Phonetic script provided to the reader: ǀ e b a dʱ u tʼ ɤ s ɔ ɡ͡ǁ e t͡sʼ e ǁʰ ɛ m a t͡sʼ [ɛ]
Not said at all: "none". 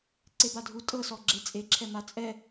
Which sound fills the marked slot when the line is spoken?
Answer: ɛ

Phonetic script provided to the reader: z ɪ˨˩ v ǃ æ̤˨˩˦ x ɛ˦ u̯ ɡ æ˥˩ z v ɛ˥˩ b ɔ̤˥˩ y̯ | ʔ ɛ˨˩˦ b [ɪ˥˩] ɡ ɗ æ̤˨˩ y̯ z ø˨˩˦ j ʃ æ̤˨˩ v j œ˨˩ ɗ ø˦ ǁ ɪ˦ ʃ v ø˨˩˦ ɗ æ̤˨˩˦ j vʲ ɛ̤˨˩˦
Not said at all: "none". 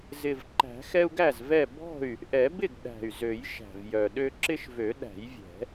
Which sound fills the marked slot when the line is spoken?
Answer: ɪ˥˩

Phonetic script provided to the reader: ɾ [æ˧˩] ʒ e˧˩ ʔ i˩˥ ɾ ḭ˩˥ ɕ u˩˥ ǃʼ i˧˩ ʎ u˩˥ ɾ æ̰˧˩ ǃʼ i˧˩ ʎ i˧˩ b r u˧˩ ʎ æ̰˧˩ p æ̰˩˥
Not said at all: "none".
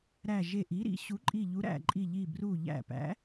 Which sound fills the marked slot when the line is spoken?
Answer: æ˧˩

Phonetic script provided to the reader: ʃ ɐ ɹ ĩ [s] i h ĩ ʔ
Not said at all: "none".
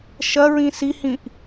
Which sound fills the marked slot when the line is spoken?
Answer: s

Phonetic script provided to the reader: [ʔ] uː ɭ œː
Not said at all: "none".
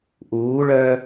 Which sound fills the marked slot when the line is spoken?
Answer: ʔ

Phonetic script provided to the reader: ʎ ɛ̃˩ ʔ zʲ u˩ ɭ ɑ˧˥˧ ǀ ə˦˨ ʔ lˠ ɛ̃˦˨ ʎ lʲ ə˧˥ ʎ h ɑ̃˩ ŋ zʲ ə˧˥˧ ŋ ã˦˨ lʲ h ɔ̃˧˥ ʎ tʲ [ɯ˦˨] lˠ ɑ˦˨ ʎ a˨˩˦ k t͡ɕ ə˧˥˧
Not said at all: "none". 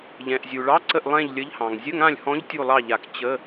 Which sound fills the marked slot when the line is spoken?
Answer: u˦˨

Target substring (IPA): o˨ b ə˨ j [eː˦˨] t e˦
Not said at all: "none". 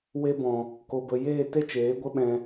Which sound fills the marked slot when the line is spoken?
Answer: eː˦˨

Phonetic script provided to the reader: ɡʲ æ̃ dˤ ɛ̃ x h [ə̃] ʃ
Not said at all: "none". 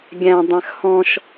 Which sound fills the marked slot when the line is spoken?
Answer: ɔ̃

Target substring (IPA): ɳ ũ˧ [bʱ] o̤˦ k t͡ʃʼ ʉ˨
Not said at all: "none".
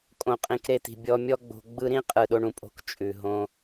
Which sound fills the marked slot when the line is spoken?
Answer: pʼ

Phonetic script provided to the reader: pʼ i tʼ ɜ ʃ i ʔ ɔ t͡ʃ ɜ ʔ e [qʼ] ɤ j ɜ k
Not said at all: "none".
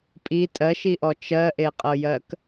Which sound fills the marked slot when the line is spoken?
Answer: qʼ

